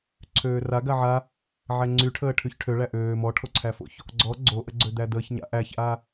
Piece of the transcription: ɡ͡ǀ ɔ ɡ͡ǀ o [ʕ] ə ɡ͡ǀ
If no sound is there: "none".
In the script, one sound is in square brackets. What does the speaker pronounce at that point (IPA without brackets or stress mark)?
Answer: ʔ